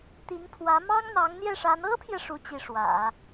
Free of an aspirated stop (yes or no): no